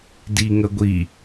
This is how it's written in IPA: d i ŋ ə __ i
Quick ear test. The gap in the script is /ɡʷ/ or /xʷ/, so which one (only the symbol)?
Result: ɡʷ